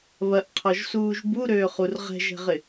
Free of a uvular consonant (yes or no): no